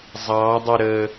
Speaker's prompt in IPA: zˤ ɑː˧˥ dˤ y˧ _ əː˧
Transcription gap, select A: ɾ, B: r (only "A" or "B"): A